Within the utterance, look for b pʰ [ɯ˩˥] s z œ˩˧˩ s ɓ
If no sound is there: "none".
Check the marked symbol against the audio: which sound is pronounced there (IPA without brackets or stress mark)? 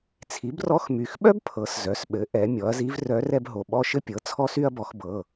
ɤ˩˥